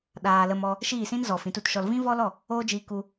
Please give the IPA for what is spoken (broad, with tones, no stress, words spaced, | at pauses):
ɗaː˧lə˧m ɔ˦ | ʃiː˦˨sĩ˦nzɔ˨ fĩ˨˦tu˦tʃɔ˧l vĩ˦vɔ˦lɔ˦˨ | oː˦d͡ʒiː˧ku˧